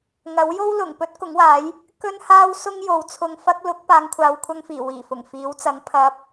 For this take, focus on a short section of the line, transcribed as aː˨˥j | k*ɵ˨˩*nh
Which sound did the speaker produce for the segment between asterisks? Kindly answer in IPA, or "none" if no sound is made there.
ɵ˥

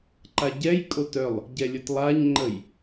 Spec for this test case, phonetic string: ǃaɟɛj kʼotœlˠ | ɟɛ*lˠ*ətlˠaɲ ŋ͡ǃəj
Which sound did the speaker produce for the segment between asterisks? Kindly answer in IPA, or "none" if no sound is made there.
lʲ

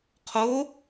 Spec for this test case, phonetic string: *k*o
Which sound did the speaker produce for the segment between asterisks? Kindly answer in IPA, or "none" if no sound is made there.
qʰ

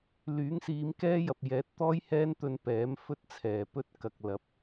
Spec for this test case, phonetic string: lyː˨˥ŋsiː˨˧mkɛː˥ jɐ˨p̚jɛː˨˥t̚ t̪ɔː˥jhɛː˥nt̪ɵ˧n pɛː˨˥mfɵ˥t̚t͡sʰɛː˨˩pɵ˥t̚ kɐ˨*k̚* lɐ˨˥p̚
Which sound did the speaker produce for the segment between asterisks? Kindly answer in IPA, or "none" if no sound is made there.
k̚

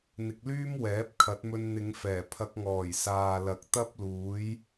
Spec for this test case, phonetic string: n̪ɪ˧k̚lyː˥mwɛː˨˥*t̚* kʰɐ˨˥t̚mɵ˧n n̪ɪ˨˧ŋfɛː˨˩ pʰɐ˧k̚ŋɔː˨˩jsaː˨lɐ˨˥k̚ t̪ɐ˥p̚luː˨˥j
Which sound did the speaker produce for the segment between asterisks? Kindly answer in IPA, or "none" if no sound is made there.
p̚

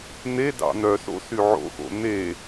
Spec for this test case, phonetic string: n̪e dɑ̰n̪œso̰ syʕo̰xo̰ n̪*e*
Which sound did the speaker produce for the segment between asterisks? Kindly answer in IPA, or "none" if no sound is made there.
e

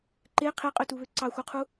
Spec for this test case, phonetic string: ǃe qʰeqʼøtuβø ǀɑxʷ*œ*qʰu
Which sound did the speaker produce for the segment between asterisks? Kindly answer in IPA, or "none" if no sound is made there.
œ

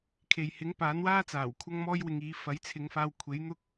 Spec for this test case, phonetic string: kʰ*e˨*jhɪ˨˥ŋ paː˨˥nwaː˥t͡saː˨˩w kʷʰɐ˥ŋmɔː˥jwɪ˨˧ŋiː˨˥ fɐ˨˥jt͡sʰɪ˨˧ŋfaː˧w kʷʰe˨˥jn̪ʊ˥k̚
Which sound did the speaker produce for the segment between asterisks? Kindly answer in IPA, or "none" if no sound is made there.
e˨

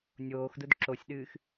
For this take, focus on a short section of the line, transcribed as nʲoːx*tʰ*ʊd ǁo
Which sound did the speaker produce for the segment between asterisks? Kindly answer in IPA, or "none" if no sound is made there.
d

